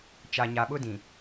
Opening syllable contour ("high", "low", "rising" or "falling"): low